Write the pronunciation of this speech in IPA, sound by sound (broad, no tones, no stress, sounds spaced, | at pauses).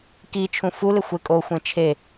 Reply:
k i t͡ʃʰ ũ f u l e xʷ e kʼ o xʷ ẽ t͡ʃʰ e